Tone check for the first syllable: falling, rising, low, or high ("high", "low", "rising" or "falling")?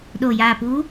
low